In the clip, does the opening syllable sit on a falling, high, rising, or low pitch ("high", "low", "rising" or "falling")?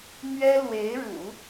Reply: high